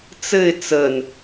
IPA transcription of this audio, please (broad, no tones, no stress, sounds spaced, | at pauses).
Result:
t͡s ɘ ɪ̯ t͡s ə n